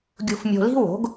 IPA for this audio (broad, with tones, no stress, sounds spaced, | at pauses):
ɡʲ ṳ˧ f mʲ o̤˧ l i̤˥ w o̤˩˥ ɡ